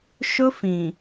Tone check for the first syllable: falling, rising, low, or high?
high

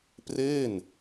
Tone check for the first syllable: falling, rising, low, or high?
falling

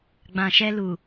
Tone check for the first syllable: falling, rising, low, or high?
low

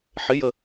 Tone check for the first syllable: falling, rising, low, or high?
rising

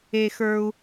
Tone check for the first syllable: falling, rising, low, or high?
high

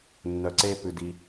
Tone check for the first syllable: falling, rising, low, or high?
low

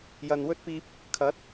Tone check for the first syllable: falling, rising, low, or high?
low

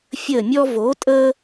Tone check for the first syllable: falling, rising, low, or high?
falling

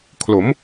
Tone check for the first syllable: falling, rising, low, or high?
rising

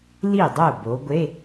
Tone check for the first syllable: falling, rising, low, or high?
falling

